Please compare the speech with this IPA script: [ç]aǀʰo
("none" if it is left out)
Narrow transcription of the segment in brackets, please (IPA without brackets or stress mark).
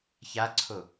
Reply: ç